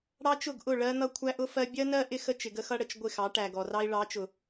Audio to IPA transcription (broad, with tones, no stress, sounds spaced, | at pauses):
ɽ ɑ˦ t͡ʃ ʊ˦˨ ɡ ʔ ʊ˦˨ ɭ ɜ˦ n̪ ʌ˦ kʷʰ æ˦ ʔ ʊ˦ f ɜ˦ bʲ ɜ˦ n ɜ˦ ʔ ɪ˦ x ə˦ t͡ʃ ɪ˨ ɡ ə˦ x ʌ˦ ɽ ə˨ t͡ʃ ɡʷ ɪ˦˨ x ɑ˨˦ ʈ æ˨ ɡ ɔ˨ r ɑ˦ i̯ ɭ ɑ˨˦ t͡ʃ ʊ˨